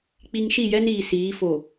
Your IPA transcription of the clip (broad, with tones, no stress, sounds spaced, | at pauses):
k͡p i˨ ŋ ʃ i˦˨ j ɛ˦ n iː˨ s iː˨˦ f o˨